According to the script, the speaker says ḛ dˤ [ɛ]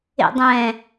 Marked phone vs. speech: incorrect: ɛ̃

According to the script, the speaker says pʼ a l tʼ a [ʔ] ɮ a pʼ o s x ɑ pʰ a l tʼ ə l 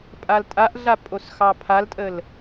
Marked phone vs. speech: correct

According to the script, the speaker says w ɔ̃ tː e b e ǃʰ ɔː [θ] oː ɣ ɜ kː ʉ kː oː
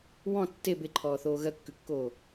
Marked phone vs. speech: correct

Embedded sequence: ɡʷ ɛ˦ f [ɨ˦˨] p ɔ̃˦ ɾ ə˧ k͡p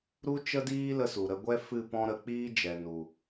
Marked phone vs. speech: correct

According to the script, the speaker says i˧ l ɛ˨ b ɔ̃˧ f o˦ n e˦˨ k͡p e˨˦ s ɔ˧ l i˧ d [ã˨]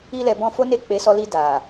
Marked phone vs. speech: incorrect: a˨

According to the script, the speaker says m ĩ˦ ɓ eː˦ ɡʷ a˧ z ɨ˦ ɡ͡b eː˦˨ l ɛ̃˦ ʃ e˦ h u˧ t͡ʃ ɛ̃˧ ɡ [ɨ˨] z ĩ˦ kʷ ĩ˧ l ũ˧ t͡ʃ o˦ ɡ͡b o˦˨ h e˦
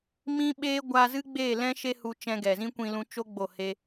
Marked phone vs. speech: incorrect: ɛ˨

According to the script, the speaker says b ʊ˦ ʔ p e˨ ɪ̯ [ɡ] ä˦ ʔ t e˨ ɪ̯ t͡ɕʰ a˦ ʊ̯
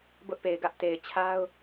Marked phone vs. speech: correct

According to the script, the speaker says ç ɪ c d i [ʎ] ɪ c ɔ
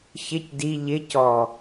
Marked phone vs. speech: correct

